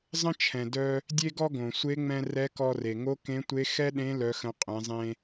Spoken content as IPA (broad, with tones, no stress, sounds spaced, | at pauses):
zˤ ə̃˥ t͡ʃʰ ɛ̃˩ d œ˧ | dʲ e˥ ɡ ɔ˥ ɡ õ˩ sʷ e˧˥ ŋ͡m ɛ̃˧ r ɛ˧˥ k ɔ˧ r e˩ ŋ o˧˥ k ẽ˧˥ tʷ e˧˥ x ɛ˥ ɗ ẽ˧˥ l œ˩˧ x ə̃˩˧ qʼ ẽ˩˧ zˤ ẽ˧